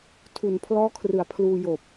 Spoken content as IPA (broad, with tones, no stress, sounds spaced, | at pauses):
tʰ u˨˩ n pʰ l ɔː˦˥ kʰ r ɯ˨˩ a̯ pʰ l uː˧ j oː˨˩ p̚